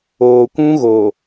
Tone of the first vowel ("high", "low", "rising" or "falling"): low